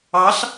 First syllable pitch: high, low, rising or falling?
rising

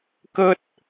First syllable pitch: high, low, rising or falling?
high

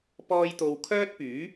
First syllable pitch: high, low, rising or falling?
high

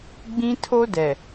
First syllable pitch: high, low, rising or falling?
high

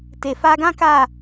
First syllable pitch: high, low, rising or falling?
low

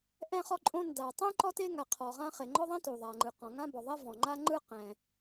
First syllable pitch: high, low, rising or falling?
high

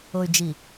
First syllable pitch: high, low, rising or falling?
low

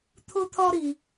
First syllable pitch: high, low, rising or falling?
high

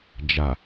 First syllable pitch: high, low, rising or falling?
low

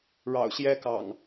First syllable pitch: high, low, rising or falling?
low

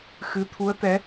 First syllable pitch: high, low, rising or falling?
rising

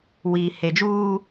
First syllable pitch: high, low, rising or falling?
low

